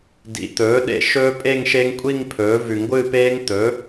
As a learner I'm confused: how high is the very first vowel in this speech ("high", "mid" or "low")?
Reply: high